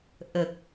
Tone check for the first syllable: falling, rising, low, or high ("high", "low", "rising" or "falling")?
low